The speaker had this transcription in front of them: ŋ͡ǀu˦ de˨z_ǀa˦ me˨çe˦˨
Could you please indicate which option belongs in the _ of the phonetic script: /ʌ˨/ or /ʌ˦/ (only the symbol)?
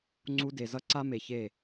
ʌ˦